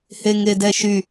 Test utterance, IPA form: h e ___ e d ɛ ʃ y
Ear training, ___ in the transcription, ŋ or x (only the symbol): ŋ